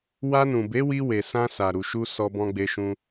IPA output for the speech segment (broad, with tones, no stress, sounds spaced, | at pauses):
w a˧ n ũ˨ b e˨˦ w i˧ w e˨ s ã˧ s a˨ ɾ u˨ ʃ u˧ s ɔ˧ b ɔ̃˧ ɡ͡b e˧ ʃ ũ˧